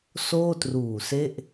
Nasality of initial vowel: oral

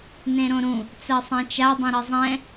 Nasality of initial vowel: nasal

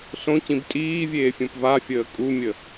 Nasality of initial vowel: nasal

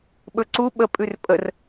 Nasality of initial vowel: oral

